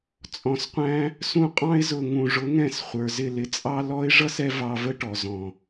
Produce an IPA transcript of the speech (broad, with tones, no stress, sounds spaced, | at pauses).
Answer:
t͡sʼ ɔ̃˨ s qʷ æ̃˧ | s ũ˧ qʼ ɑ̃˧ ɪ̯ z ʊ˨ ŋ ũ˨ ʐ ʊ˨˦ ŋ ɛ̃˧ s χʷ ə˞˨ z ɪ˦˨ l ɪ˧ t͡sʼ ɑ˦ l ɔ˧ ɪ̯ ʐ ʌ˦ s ɛ˧ v ɑ˧ v ə˦ ʈ ɔ˨ z ɔ̃˨